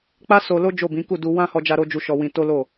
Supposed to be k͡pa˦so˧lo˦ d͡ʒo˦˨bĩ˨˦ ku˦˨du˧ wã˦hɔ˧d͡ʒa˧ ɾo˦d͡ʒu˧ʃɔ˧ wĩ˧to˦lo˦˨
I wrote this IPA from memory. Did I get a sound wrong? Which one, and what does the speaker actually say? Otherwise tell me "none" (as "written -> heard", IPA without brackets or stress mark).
none